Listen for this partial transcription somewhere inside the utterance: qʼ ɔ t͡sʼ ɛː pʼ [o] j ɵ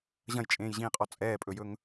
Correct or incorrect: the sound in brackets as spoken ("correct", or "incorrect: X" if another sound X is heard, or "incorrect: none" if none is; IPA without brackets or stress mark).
incorrect: ɵ